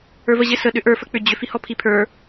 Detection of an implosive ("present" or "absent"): present